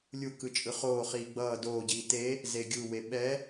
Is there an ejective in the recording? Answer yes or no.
yes